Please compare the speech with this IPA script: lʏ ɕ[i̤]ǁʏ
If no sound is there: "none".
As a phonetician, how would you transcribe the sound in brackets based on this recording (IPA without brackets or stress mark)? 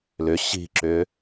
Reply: i̤